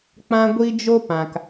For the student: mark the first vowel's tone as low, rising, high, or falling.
high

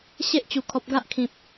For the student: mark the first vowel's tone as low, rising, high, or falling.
high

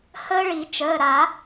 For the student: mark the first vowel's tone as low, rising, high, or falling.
high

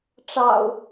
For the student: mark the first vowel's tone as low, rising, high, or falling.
low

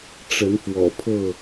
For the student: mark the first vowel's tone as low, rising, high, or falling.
rising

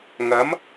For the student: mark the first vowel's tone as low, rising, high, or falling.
rising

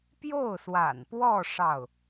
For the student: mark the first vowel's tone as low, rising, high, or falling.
falling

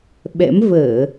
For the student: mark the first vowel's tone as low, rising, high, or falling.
rising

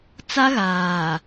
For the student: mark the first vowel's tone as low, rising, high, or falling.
high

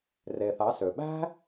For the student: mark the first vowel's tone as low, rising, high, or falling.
low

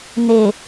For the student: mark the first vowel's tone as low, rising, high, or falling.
low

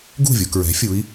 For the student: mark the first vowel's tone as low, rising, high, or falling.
falling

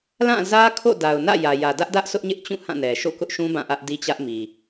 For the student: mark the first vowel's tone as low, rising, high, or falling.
falling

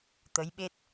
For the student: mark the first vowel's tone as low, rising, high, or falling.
rising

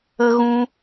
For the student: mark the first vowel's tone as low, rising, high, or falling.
high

